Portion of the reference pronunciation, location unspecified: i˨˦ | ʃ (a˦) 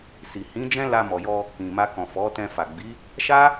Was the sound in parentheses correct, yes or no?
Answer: yes